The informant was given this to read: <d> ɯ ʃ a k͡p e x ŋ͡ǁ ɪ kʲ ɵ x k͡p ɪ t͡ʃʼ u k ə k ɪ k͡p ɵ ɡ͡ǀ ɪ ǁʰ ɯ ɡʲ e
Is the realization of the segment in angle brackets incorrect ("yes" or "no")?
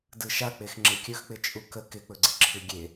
no